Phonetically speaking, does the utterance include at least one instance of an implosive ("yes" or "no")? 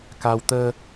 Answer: no